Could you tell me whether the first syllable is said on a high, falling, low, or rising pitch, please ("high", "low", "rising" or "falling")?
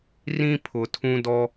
high